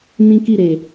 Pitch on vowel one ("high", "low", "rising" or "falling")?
high